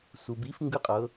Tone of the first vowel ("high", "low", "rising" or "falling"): low